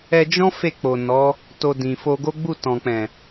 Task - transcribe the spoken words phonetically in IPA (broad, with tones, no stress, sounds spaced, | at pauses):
ɛ˧ d͡ʒ ɔ̃˦ f e˦˨ k͡p o˨ n ɔ˨˦ | t o˧ d ĩ˨ f o˧ ɡ o˦ ɡ͡b u˦˨ t ɔ̃˨ k͡p ɛ̃˨